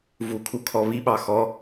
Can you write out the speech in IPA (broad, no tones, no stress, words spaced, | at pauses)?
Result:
vukʰukʰɔ βiɓɑ xɔ